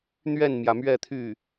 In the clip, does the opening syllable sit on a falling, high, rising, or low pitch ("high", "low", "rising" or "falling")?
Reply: falling